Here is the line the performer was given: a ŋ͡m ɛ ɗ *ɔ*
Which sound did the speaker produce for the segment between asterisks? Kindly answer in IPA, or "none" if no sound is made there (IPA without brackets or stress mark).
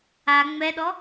ɔ